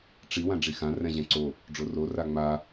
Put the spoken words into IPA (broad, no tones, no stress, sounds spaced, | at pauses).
ʈ͡ʂ i w ã ɖ͡ʐ i x ã r ɛ̃ ʑ ɛ̃ ǀ o | ɖ͡ʐ o r o r a ŋ͡m a